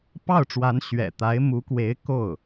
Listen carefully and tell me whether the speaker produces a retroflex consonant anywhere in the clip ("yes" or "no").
yes